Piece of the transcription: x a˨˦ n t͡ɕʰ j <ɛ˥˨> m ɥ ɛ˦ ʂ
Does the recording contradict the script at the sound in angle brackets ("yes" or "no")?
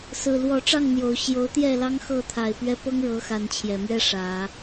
yes